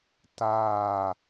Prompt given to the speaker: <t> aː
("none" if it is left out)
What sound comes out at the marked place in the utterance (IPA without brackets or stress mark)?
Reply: t